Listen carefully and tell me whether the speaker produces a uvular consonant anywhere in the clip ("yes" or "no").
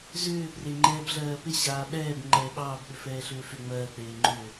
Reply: no